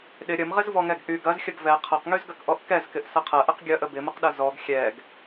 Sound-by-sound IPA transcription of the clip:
ɗ ɪ ɾʲ ə m ʁ ɪ z v ɔ ŋ ɛ ɡ ʔ y ɡ ɐ z xʲ ə ɡ v ɛ qʰ ɐ q ŋ y z ɡ ɐ k ʔ ɔ ʔ k ɛ z k ɪ ʔ s ɐ qʰ ɐ ʔ ə q ɡʲ ɐ ʔ ə b ɪ m ə q ɗ ɐ z ɔ ɡ xʲ ɛ ɡ

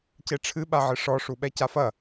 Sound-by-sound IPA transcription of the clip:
c e ʈ͡ʂʰ ɨ ɓ a ʕ ɨ ʂ ɔ ʂ u ɓ ɛ c a f ɐ

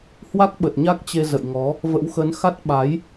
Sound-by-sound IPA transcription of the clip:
h w a˦˥ k̚ ɓ ə˨˩ t̚ ɲ a˦˥ k̚ t͡ɕ e˧ z ə̰˧˨ j ŋ ɔ˨˦ | v ə̰˧˥ w x ə˨˦ n x a˦˥ t̚ ɓ a˨˦ j

